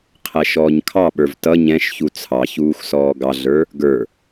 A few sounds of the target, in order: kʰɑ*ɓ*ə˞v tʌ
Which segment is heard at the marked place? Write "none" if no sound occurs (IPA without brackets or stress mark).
ɓ